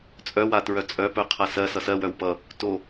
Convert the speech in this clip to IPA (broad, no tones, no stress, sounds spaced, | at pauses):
t͡sʼ œ w a t ɹ œ t͡sʼ œ p œ qʰ a s ɜ s ʌ s ɜ w œ w p ʌ | t o